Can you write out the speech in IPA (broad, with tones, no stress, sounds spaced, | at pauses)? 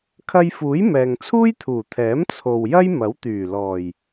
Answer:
kʰ ɐ˧ j f uː˨˥ j m ɛː˨ ŋ t͡sʰ uː˥ j t̪ʰ uː˨˩ t̪ʰ ɛː˨˥ m t͡sʰ o˨ w j ɐ˥ j m ɐ˨˥ w t̪ yː˨˩ l ɔː˨˩ j